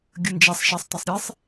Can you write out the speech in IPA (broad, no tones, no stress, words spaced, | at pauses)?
ɡʲənd͡ʒɛsˤ ʃɛsˤ tˤesˤɾʲesˤ